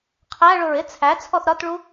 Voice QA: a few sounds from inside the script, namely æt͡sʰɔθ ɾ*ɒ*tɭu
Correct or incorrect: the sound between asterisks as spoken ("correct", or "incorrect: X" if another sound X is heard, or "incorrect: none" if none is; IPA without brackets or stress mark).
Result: correct